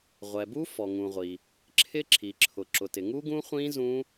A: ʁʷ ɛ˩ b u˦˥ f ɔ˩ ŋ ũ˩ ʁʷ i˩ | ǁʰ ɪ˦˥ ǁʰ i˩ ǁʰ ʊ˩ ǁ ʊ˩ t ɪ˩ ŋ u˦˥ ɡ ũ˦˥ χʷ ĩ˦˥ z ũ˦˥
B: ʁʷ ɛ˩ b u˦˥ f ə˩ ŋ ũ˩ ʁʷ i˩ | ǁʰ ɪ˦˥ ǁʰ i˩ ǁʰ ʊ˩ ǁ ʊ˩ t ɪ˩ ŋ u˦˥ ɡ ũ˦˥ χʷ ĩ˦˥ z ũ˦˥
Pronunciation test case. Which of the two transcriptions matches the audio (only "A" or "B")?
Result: A